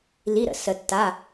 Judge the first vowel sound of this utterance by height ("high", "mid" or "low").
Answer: high